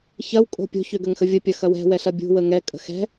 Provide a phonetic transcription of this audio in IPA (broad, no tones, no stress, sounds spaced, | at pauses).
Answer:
ç ɐ w kʼ o̤ pʲ o̤ ç ø ɡ ə ŋ x ə vʲ ə pʲ ɐ x ɐ w ɛ̤ w ɛ ɬ ɐ bʲ ṳ w ə ŋ ɛ kʼ ə̤ x ɛ̤